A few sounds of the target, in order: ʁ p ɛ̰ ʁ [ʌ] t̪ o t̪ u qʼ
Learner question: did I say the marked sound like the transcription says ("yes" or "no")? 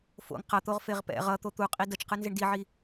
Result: yes